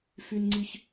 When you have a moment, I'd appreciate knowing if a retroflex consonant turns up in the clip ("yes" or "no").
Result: no